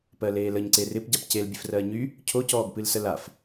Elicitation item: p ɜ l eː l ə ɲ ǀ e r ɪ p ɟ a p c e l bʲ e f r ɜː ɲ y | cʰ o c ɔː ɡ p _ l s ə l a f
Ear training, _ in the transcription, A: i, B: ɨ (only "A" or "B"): B